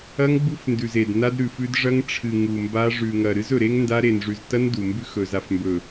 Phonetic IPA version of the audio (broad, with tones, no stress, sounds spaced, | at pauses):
ɐ˦ ŋ ɡ͡b u˦ f n d ʉ˨ z e˨ d n a˦ d ɾ ʉ˨ f ʉ˦ d ʐ ɐ˦ ŋ ʈ͡ʂʰ ɨ˨ ŋ u˨ m b a˦ ʐ ʉ˨ ŋ ɐ˨ ɾ ɨ˦ z ɵ˨ ɾ e˦ ŋ n d a˦ ɾ e˨ n ʐ ʉ˨ z t ɐ˦ n d u˨ m b ʉ˦ x ɵ˨ z a˨ f m b ɵ˨